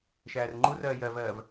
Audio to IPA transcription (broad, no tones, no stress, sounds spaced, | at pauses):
ʃ æː r ŋ͡ǃ u r ɜː j ɜ v ɜː v